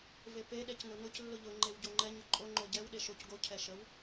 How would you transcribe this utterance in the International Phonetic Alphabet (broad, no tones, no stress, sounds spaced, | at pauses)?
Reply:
v e p e ɗ ɛ c n ʊ n ʊ c lː ʊ ʎ ʊ ŋ͡ǃ e w ɟ o ŋ͡ǃ ɛ ɲ ʊ ǃʼ o ŋ͡ǃ o ɟ ɛ w ɗ e ʃ o c ɡ o cʰ ɛ ʃ ə w